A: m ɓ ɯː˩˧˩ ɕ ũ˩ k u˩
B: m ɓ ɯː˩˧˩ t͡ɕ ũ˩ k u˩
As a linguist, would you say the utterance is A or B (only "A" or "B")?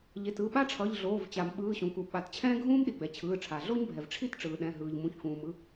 A